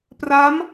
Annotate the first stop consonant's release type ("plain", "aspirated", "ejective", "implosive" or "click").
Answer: plain